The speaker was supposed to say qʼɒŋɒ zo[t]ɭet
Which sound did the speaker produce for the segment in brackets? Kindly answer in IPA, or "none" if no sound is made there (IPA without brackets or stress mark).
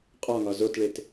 t